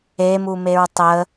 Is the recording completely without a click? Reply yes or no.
yes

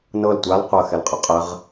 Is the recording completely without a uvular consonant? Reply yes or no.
no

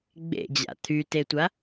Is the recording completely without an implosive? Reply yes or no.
yes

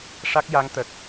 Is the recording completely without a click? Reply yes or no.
yes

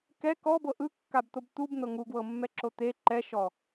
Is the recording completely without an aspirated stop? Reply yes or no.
yes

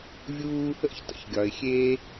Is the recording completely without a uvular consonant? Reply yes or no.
yes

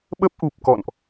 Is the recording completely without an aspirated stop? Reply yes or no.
yes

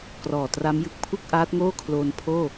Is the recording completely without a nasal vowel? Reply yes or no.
yes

